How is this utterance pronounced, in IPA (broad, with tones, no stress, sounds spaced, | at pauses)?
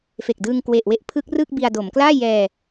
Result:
f e˨˩ k̚ d ɯː˧ ŋ k w e˨˩ ʔ w e˥˩ ʔ pʰ ɯ˦˥ k̚ r ɯ˥˩ k̚ b i˧ a̯ d o˩˦ m k l aː˥˩ j ɛː˧